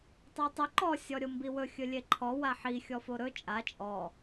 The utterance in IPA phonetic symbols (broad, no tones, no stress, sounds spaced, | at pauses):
tˤ o tˤ ɵ ǃ ɔ sʲ ɔ ɾʲ o m b i w ɵ xʲ ɵ lʲ e ǃʰ ɔ w a ħ i xʲ ɔ f o ɾ ɵ t͡ʃʼ a t͡ʃʼ ɔ